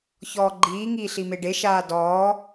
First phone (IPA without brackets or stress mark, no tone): ç